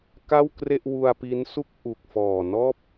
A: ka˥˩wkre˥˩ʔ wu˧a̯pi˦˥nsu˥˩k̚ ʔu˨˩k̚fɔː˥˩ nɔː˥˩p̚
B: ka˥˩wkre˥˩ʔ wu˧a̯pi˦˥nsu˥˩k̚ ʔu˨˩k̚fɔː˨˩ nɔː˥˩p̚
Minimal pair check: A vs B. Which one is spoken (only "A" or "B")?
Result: B